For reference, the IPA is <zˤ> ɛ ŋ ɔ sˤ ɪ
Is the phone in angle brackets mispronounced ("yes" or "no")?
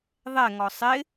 yes